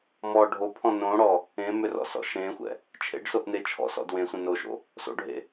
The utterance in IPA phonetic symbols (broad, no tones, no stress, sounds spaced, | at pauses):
m ɔ ɖʱ o pʰ ɔ̃ n õ ɽ ɔ | ẽ m ʏ r ɔ̰ s ɔ̰ ʃ ẽ xʷ ɛ̰ | t͡ʃʰ ḛ ɖ s o ʔ n e t͡ʃʰ ɔ̰ s ɔ̰ d w ẽ sʷ ɛ̃ n o ʃ o̰ | s o̰ ɖʱ ḛ